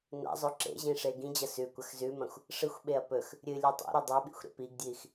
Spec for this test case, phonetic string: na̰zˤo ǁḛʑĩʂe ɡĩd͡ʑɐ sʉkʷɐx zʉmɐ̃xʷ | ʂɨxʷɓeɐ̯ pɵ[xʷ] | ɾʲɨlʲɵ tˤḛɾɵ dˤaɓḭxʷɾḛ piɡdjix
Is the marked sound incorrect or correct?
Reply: incorrect: x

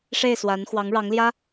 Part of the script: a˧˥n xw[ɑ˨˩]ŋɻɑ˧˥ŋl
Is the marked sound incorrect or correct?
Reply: incorrect: ɑ˧˥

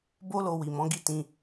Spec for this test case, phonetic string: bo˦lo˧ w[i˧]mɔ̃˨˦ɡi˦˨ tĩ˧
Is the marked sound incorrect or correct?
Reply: incorrect: i˨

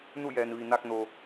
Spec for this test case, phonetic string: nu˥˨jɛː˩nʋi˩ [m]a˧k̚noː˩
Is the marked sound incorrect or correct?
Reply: incorrect: n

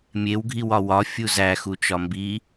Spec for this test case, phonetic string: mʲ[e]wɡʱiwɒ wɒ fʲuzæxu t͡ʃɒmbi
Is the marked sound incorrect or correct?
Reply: correct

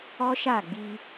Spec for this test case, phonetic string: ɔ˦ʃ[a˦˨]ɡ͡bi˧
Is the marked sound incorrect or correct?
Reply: correct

